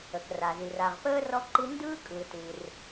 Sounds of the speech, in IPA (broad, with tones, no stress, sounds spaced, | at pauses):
ə˩ k r a˩ z i˩ r a˩ ʁ p əː˥ r ɔ˥ ǃ i˥ n d ɯː˥ kʼ ɯ˩ t ɨ˩ r